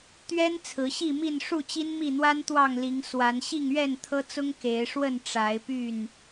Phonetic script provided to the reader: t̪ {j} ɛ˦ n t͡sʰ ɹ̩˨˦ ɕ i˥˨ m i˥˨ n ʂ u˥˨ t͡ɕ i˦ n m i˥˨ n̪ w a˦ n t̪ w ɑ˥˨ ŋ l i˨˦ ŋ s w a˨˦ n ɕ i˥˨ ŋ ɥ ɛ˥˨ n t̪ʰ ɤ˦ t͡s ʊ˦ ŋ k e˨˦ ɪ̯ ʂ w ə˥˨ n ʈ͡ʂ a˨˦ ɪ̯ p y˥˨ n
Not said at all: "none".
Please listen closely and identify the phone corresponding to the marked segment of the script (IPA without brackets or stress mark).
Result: ɥ